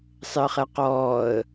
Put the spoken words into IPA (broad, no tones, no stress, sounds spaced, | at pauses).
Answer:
sˤ ɪ ə̯ χ ɛ q ɔː ə̯